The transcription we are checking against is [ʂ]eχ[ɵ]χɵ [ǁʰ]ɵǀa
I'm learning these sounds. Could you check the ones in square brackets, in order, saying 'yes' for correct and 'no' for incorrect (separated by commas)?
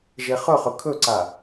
no, yes, no